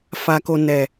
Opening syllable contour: low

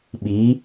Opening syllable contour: rising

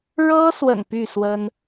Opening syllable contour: high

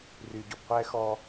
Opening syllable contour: low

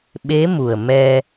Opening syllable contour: rising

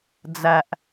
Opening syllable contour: low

